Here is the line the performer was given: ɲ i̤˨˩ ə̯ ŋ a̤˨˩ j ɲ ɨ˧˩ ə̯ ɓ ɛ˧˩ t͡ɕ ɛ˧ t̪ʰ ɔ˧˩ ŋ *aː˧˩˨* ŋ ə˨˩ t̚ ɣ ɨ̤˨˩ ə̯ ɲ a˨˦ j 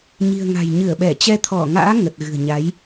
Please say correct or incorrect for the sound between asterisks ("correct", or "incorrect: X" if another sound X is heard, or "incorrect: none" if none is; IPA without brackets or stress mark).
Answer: incorrect: a̰ː˧˥